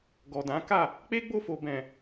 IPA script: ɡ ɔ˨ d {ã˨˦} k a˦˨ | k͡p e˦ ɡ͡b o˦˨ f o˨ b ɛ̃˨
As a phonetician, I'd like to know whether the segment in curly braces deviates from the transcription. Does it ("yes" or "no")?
no